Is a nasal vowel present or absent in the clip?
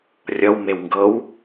absent